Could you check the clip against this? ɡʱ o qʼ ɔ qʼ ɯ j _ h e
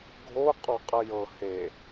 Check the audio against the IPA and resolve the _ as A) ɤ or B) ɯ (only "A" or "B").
A